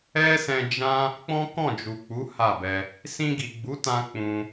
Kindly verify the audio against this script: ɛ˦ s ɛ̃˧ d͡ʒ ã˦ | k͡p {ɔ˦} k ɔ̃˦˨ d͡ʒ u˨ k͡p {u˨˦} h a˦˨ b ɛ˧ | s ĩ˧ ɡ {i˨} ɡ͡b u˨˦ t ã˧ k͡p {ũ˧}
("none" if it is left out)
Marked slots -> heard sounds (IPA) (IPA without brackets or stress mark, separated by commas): ɔ̃˦, u˨˦, i˨, ũ˧